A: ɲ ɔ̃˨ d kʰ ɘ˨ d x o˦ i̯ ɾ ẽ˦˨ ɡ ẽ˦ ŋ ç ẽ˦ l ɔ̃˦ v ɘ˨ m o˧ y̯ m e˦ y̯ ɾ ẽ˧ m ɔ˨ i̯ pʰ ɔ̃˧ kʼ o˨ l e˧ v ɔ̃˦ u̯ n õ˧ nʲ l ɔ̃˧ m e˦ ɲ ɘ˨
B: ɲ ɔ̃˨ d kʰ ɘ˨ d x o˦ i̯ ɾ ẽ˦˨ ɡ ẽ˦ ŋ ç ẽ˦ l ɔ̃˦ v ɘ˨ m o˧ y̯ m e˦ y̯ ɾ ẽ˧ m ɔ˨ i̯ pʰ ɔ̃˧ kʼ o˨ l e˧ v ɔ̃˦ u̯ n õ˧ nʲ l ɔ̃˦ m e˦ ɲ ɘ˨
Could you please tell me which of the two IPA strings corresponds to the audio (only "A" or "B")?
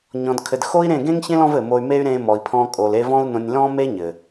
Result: B